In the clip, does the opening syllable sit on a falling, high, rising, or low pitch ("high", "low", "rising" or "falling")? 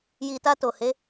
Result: low